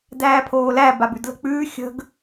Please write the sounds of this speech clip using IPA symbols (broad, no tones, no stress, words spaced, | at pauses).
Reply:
dæːpʰoːlæ babʉdlə̤k͡pʉː xʲə̤ɡ